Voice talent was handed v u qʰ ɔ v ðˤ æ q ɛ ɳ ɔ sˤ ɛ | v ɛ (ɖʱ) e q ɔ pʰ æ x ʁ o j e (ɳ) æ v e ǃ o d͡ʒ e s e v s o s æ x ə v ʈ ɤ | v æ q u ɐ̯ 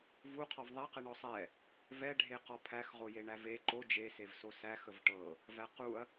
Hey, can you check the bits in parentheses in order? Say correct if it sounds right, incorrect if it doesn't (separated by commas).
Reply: correct, correct